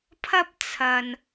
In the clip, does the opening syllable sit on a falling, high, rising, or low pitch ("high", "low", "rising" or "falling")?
high